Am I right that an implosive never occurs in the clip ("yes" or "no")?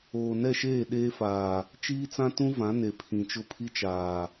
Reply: no